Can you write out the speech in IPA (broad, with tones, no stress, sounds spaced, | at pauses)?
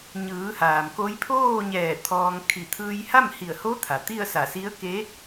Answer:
ɲ ɯː˩˧ h aː˩ m k o˧˥ j pʰ oː˥˨ ɲ ɛː˧˩ t̪ʰ ɔː˧ ŋ kʰ i˧˩ t̪ʰ ɯː˧ j h a˥˨ m h i˧˩ ə̯ h o˧˥ t̪ʰ a˩ t̪ i˥˨ ə̯ s a˧˩ s i˧˥ ə̯ k e˧˥